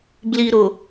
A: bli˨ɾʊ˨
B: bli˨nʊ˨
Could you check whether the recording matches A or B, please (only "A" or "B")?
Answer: A